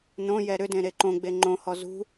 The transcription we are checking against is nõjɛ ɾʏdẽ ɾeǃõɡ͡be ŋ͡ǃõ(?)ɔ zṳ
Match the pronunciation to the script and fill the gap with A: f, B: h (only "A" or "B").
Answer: B